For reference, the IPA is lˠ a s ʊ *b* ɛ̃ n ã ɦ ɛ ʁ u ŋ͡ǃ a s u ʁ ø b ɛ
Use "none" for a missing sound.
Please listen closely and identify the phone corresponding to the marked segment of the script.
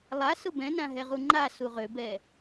b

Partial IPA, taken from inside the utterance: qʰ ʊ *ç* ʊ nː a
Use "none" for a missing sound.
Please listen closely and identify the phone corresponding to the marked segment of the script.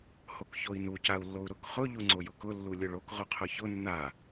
ç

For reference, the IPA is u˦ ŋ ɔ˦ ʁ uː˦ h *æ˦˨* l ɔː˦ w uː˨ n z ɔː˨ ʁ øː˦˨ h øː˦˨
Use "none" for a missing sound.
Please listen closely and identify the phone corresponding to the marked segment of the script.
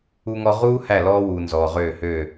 æ˦˨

